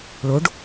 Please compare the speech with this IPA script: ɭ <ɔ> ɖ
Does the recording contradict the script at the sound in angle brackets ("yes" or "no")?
yes